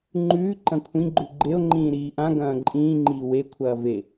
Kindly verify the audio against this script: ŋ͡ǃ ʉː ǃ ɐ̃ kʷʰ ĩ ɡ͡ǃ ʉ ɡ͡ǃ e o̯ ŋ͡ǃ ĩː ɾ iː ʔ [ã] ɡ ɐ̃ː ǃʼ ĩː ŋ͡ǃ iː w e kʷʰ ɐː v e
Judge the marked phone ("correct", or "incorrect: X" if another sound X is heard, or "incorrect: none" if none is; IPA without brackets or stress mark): correct